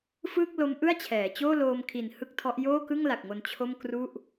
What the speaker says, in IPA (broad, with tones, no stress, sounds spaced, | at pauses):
f ɯː˥˩ k̚ l o˦˥ m ʔ ɯ˥˩ a̯ t͡ɕʰ ɛː˩˦ t͡ɕ oː˥˩ l oː˧ m kʰ i˨˩ n h ɯ˥˩ k̚ tʰ ɔ˦˥ ʔ j oː˥˩ k ɯ˥˩ ŋ l a˨˩ k̚ ŋ o˧ n t͡ɕʰ o˥˩ m k r u˥˩ ʔ